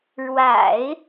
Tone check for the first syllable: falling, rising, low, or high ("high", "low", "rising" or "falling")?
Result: low